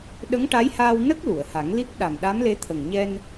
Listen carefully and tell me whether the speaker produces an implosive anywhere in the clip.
yes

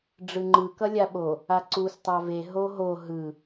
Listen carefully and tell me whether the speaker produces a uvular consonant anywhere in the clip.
no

